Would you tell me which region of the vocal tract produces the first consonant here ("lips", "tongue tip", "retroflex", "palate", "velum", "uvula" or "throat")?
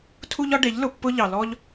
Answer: tongue tip